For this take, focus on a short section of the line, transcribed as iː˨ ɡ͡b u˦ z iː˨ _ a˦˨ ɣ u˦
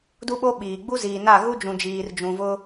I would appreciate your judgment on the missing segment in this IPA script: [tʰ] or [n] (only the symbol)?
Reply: n